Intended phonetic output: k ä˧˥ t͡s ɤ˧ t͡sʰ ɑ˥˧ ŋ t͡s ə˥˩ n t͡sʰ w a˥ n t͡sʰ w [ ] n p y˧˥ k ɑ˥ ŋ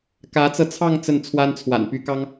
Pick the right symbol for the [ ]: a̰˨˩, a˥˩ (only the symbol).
a̰˨˩